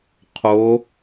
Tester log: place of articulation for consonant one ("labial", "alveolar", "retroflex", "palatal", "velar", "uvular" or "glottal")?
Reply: uvular